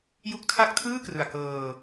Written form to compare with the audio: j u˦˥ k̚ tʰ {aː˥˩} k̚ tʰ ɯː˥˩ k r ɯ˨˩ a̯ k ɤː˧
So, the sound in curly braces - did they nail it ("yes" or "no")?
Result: no